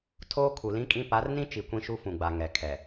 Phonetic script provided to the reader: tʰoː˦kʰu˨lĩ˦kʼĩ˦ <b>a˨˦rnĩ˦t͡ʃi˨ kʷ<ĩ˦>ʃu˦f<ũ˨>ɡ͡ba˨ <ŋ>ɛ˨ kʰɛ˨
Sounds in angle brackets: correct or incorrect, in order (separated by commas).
incorrect, correct, correct, correct